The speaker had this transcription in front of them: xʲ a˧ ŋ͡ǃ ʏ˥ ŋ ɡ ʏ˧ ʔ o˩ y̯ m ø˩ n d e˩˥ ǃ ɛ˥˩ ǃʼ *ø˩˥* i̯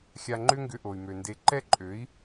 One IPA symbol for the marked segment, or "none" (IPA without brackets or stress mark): ø˩˥